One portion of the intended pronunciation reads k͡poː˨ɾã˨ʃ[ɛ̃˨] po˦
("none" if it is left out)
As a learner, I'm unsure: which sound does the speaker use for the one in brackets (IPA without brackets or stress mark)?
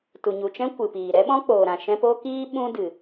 ɛ̃˧